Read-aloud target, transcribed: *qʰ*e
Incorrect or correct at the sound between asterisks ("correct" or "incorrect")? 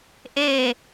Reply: incorrect